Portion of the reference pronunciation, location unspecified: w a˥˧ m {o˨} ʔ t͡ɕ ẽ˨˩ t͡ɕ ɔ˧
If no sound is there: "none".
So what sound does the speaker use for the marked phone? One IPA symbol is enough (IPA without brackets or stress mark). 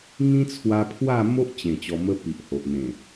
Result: o˦